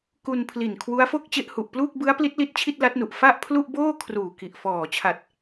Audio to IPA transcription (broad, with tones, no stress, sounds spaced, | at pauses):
k u˧ n pʰ l i˨˩ n kʰ w u˦˥ a̯ f o˥˩ k̚ t͡ɕ e˦˥ ʔ h u˨˩ ʔ p l uː˥˩ k̚ b ɯ˦˥ a̯ p l i˦˥ t̚ l i˦˥ t̚ t͡ɕʰ i˥˩ t̚ l a˦˥ t̚ n u˨˩ ʔ f a˥˩ ʔ pʰ l u˥˩ ʔ b oː˥˩ kʰ r uː˨˩ k i˨˩ ʔ f ɔː˨˩ t͡ɕʰ a˨˩ t̚